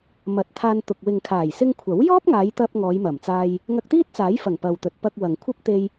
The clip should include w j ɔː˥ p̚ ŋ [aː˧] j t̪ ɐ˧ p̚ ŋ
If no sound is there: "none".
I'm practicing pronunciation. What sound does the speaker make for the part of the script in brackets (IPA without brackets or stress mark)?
aː˨˧